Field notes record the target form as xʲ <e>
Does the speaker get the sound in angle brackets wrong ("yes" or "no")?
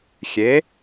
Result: no